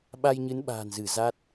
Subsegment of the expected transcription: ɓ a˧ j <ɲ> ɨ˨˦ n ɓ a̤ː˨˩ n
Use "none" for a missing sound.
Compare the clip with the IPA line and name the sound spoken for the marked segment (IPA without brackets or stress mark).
ɲ